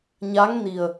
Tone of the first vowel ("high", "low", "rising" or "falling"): rising